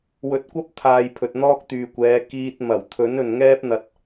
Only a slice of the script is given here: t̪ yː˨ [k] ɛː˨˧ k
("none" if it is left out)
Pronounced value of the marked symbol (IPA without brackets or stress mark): kʷ